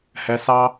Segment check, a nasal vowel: absent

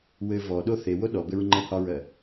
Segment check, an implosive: present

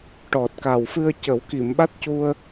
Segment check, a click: absent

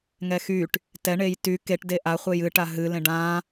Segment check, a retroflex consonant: present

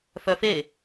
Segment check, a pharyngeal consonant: absent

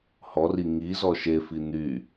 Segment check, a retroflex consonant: absent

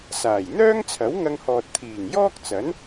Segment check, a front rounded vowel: present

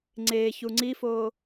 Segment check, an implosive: absent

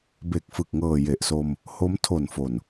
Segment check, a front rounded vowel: absent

